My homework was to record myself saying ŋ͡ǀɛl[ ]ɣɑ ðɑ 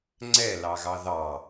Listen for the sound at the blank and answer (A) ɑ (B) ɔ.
A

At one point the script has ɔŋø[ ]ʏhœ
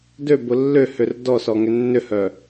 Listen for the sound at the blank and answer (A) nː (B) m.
A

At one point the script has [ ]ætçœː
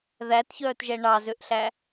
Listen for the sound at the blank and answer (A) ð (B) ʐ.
A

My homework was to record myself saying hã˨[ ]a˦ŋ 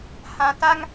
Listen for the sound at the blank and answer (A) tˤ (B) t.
B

